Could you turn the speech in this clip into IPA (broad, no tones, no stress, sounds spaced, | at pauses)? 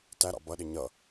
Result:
t æ ɾ ɑ̰ b ʌ ɗ ɪ ɲ ʌ